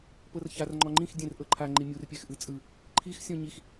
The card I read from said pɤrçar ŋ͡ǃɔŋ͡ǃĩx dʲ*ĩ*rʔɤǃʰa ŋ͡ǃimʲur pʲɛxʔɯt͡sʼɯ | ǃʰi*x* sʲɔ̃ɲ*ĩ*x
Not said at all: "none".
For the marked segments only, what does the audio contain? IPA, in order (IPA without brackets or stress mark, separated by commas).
ẽ, x, i